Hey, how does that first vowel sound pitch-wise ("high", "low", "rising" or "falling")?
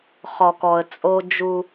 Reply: low